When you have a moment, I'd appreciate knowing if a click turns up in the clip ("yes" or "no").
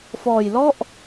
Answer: no